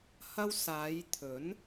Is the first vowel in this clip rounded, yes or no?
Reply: no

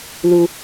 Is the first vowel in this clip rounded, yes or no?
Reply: yes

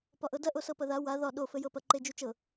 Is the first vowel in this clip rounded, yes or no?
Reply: yes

